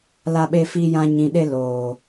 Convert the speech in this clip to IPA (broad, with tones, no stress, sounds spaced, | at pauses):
l a˦ ɓ e˦ f iː˦ j ã˦ ɲ ĩ˧ ɗ e˦ l oː˨